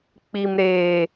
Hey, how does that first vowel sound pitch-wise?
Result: low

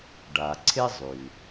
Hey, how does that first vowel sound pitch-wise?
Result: low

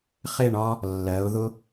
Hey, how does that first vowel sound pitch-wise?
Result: falling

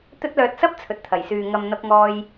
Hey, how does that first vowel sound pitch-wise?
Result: high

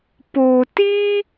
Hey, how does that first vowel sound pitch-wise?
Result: low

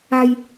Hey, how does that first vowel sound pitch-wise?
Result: high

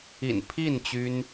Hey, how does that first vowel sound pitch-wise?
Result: low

